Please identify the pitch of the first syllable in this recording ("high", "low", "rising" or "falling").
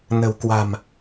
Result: low